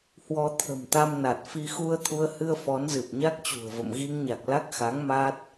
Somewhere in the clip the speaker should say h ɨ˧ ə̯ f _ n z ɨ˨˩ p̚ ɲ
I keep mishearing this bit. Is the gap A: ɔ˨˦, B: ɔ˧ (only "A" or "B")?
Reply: A